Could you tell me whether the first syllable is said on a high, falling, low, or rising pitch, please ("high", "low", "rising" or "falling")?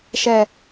low